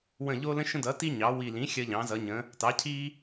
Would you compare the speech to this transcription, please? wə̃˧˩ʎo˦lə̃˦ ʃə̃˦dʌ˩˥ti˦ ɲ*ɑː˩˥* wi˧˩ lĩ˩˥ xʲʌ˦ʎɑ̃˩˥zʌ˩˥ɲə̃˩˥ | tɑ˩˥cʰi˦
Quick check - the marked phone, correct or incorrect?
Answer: incorrect